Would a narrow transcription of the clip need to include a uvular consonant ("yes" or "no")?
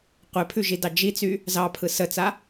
yes